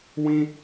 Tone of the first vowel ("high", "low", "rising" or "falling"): high